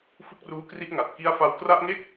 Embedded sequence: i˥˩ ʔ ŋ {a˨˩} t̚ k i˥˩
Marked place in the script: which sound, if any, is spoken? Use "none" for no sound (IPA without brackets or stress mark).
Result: a˨˩